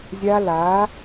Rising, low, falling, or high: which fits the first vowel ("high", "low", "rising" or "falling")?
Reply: high